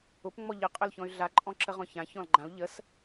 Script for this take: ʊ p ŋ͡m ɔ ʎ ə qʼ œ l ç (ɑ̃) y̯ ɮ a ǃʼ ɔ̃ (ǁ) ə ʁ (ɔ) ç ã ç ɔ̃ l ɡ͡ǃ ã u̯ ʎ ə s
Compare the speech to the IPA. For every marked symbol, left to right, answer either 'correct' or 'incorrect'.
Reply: incorrect, correct, incorrect

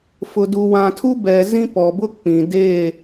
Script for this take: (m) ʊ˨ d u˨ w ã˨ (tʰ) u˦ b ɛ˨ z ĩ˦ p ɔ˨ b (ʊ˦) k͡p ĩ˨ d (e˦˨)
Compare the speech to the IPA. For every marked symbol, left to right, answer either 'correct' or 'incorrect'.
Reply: incorrect, correct, correct, correct

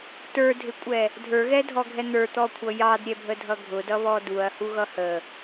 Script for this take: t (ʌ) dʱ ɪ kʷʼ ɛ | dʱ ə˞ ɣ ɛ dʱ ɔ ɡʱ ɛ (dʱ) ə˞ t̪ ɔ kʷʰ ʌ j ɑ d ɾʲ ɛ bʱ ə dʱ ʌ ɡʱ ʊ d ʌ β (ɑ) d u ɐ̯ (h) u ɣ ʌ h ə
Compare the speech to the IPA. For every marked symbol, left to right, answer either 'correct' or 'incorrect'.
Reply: incorrect, incorrect, incorrect, correct

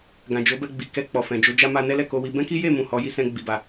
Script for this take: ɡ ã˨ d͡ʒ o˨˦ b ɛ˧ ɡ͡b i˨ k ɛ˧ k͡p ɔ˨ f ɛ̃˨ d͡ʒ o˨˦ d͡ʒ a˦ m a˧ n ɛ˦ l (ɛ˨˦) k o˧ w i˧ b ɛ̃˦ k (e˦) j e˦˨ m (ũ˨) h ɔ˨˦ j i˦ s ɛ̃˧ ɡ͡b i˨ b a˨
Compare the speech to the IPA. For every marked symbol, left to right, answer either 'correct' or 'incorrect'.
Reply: incorrect, incorrect, correct

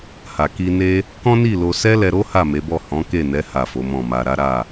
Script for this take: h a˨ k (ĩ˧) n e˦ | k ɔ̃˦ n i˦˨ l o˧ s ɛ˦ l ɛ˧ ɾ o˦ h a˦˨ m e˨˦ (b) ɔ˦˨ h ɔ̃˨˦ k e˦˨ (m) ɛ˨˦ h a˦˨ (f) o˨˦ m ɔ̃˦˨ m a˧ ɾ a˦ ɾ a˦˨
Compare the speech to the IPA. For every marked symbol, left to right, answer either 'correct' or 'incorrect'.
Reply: incorrect, correct, incorrect, correct

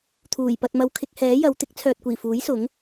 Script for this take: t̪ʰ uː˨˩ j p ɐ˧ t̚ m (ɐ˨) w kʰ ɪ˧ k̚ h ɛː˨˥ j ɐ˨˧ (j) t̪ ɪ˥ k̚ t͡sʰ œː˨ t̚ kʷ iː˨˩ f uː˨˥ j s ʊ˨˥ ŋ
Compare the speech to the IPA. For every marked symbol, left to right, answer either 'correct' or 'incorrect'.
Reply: incorrect, incorrect

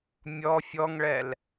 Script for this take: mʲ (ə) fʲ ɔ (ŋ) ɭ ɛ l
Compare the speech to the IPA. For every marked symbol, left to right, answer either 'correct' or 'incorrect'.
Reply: incorrect, correct

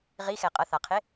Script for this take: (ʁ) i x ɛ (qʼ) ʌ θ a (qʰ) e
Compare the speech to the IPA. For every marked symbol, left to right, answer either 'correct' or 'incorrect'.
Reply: correct, correct, correct

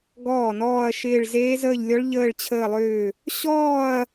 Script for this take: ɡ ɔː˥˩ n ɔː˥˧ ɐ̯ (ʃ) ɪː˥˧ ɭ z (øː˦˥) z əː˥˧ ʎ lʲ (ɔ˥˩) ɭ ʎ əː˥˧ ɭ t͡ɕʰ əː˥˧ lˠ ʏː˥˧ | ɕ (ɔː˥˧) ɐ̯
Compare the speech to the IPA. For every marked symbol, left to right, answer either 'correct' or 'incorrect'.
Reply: correct, incorrect, incorrect, correct

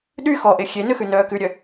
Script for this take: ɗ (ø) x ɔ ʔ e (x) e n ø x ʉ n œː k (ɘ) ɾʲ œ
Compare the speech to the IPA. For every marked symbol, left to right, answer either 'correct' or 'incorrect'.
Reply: incorrect, incorrect, incorrect

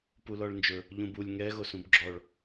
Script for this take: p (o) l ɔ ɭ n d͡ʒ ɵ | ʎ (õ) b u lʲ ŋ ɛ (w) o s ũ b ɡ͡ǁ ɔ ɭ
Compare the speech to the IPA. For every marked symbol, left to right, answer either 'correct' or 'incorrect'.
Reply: incorrect, incorrect, incorrect

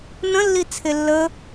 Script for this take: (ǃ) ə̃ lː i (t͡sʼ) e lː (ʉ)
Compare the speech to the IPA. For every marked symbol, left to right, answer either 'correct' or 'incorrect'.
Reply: incorrect, incorrect, incorrect

